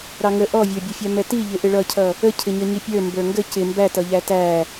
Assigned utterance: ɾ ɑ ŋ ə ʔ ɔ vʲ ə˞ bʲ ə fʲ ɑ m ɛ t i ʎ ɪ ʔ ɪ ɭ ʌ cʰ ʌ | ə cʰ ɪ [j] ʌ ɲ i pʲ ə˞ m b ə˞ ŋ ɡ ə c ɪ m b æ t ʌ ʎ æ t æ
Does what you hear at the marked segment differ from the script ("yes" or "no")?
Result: yes